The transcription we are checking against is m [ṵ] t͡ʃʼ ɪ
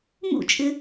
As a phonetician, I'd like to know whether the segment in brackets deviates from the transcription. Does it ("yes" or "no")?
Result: no